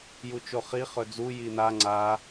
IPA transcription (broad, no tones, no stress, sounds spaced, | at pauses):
j u t͡ʃ o χ i χ ɵ d͡z u j i n a ŋ͡ǀ a